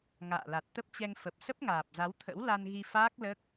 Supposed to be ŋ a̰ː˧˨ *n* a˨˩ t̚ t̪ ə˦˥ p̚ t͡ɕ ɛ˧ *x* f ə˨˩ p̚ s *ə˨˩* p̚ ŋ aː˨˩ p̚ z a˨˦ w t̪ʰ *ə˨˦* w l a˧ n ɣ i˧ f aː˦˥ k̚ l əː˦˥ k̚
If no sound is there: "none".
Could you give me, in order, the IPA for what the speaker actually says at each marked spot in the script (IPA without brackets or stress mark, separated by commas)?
l, ŋ, ə˦˥, ə̰˧˥